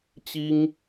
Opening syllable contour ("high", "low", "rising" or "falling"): high